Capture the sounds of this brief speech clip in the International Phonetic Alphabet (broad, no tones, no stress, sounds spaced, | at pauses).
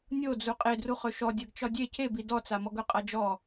nʲ o d͡z u qʼ e d r u χ ɵ ʃ ɔ dʲ ɜ ɡ t͡ʃ ɒ dʲ e cʰ e b i d ɔ t͡s a m ɔ ɡ ɵ qʼ a d͡ʒ ɔ